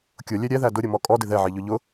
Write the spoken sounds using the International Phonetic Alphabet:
kʲʊlʲɛ ɾʲɛðæ dʊɾʲʊmɔ kʼɔdɪ ðɛʕiʎʊ ʎʊ

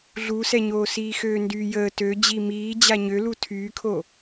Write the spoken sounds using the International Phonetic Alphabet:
ɮusɛɲoː siːxøːndyːjəː tø d͡ʑimiː d͡ʑaɲø lutʰyːkʰo

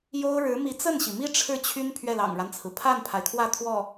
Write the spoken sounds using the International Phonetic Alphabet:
jo˥ʊ̯ɻɻ̩˧˥ mi˧˥t͡sə˥˩nɕi˩mi˥ ʈ͡ʂʰɻ̩˥˩t͡ɕʰy˥n pʰɥɛ˥˩lɑ̰˨˩ŋɻa˦nt͡sʰɹ̩˩ pʰa˥˩npʰa˩ɪ̯ t̪ʰwä˥˧ t̪ʰwɔ˥˩

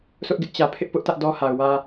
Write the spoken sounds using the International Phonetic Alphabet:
sʰʊ˦ʔɡɪ˦ʔt͡ɕä˨ pʰɪ˦ʔpʊ˦ʔtä˦ʔ dɔ˦ha˨ʊ̯wä˦

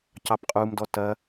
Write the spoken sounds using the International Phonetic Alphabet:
cɑpqʼumdɔ tɐ

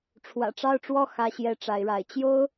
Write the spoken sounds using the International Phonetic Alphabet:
ʈ͡ʂʰwä̰˨˩ʈ͡ʂɑ˥˧ʊ̯ʈ͡ʂwɔ˥˩ xä˥ɕjɛ˥ʈ͡ʂa˧˥ɪ̯ɻa˧˥ɪ̯ t͡ɕjo˥ʊ̯

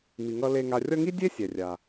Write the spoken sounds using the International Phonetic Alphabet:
mi˩ŋʌ˨ le˨ ŋa˨rʲʌ˦ŋi˥ dʲe˥sʲɛ˩rʲa˩

